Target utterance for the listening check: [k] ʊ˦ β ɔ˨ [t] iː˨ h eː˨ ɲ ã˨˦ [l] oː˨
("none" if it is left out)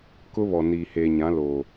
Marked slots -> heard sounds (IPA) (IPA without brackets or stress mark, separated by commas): k, n, l